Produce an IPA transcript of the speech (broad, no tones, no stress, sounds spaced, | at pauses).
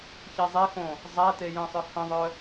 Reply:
ç e zˤ e x õ | zˤ æ t e j ə̃ sˤ œ h ə̃ ðˤ œ